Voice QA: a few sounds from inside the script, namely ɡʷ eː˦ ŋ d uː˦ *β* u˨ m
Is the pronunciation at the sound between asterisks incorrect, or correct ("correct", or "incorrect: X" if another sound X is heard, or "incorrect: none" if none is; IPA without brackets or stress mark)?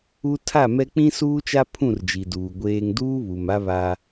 correct